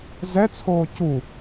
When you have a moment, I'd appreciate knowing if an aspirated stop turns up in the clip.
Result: yes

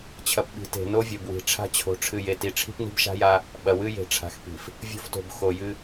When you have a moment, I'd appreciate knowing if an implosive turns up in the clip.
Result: yes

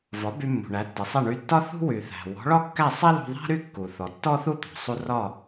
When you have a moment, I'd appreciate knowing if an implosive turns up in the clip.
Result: no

